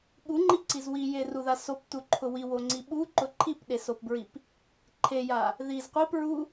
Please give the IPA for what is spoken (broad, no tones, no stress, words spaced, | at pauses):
ɠuŋ͡ǃiǀiz wijeruða soptuǃʰʊ wiwoŋ͡ǀi ɓuǃʊ ǃʰipɗesopbɹip | ǃʰeja | ðiz qʷip ɹu